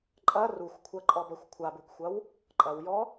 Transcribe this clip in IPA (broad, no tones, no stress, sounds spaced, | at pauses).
ǃʼ ɐ r u xʷ kʷʰ ɐ ǃʼ ɔ b ɐ xʷ kʷʰ a b u k xʷ ɐ w | ǃʼ ɐ w j ɔ